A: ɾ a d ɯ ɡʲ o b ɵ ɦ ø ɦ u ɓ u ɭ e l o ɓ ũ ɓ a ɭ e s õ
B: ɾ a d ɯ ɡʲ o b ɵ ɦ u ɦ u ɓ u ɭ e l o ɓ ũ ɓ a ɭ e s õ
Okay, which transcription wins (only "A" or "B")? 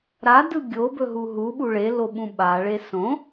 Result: B